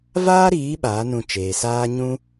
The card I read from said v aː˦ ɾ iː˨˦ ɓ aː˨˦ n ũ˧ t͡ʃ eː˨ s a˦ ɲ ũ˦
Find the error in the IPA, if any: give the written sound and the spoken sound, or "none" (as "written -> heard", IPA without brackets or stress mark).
a˦ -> aː˦